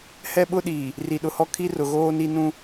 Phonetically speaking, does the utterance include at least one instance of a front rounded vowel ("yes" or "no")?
no